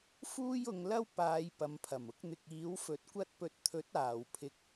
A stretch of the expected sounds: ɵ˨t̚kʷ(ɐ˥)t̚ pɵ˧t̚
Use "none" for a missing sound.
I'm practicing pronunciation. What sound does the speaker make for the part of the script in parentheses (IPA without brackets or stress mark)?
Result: ɐ˥